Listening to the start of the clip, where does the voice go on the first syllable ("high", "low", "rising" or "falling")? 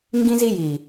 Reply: high